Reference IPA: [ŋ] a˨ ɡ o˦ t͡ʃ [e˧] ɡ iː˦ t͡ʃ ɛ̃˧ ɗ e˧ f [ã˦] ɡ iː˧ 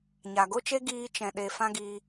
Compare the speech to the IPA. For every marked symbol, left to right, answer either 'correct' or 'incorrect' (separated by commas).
incorrect, incorrect, correct